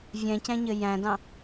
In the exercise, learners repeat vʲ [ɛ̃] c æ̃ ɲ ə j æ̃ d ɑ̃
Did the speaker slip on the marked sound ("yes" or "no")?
no